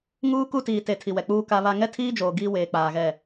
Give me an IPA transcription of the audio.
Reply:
ŋ uː˦ k u˦ t iː˨ t e˨˦ tʰ i˨ w ɛ˨ k͡p uː˦ k a˦ β a˦ ŋ ɛ˦ tʰ iː˦ d͡ʒ oː˨ ɡ iː˦ w eː˨ k͡p aː˨ ɣ ɛ˦˨

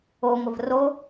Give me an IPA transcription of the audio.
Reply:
o ŋʷ ə v r o

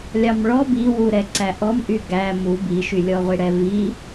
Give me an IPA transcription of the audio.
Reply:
lʲ ɑ m ɭ ɔ b i w u ɾ ɛ ǀ æ ʔ ɔ m ʔ y ɡ æ m u b i ʃ y lʲ ɔ ʁʷ i ɽ ɛ v i

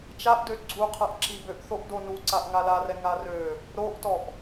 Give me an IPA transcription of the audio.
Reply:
t͡ʃ a ʔ d ø ɡ͡ǀ u qʰ a ʔ ǁ i b ø ʔ θ o ʔ d o n u ǀ a ʔ ŋ a l a r ɛ ŋ a r ø | ɾ o ʔ t ɔ ʔ

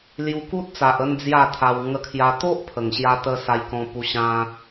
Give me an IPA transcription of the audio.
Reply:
l j u˧ k u˦ t̚ t͡s a˨ ʔ ə˧ n d͡z j a˥˧ t̪ʰ a˧ w ŋ ə˧ kʰ j a˧ t̪ o˦ ʔ pʰ ə˨˩ ŋ ɕ j a˧ t̪ ə˧ s a˧ j k ɔ̃˧ p u˧ ɕ ã˧

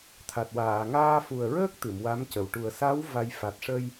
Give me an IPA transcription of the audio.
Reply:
t̪ʰ a˨˩ t̚ w aː˨˩˨ ŋ aː˧ f u˨˩ ə̯ ɹ əː˦˥ k̚ t̪ ɨ˨˩˨ m w a˧˥ m c ə˨˩ w ʈ u˨˩ ə̯ s a˧˥ w v a˧ j f a˨˩ t̚ ʂ ə˧ j

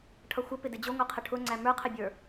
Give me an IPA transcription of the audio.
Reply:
ʈʰ ʌ xʷ ə p ɪ d ɪ d͡ʑ ʊ ŋʷ ɛ qʰ ə ʈʰ ʊ ŋ͡ǀ æ m ə˞ qʰ ɪ bʲ ə˞

